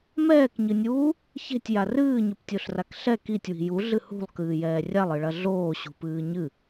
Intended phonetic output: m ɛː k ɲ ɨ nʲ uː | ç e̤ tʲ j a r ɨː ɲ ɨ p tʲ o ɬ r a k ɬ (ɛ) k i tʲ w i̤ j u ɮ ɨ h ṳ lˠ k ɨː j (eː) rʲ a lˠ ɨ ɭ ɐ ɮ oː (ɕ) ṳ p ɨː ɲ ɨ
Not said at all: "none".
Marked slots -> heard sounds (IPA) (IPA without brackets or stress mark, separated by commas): ɛ, ɛː, ɕ